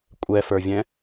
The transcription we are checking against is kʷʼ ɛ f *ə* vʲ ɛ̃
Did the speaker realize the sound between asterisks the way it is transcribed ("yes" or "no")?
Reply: no